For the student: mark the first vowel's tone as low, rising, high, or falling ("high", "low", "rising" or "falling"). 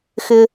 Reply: low